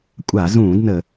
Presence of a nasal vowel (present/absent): present